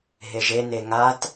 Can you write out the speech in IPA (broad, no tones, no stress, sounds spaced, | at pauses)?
ɦ e ʒ e n e ŋ a t